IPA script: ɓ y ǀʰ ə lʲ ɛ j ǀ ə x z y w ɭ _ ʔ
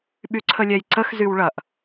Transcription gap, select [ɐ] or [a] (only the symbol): ɐ